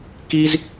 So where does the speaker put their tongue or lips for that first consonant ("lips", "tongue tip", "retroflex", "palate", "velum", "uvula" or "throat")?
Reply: velum